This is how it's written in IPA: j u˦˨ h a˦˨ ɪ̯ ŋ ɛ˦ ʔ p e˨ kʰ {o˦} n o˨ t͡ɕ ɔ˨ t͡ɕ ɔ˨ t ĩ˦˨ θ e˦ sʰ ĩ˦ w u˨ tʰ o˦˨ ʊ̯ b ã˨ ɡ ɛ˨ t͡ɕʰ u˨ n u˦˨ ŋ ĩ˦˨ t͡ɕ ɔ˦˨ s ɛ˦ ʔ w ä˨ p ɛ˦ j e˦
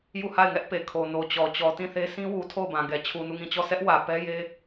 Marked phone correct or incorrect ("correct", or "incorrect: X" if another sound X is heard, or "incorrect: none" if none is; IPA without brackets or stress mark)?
incorrect: o˨